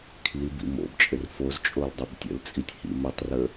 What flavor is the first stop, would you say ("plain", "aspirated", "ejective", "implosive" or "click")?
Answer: aspirated